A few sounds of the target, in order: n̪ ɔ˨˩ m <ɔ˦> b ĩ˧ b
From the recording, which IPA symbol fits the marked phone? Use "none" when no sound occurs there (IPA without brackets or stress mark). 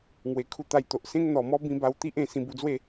ɔ˦